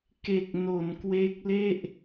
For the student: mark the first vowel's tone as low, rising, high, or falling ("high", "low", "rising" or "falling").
low